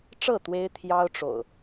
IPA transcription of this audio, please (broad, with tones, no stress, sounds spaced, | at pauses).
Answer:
ʈ͡ʂ ɤ˥˨ t̪ w e˦ ɪ̯ t̪ʰ j ɑ˦ ʊ̯ ʈ͡ʂ o̰˨˩ ʊ̯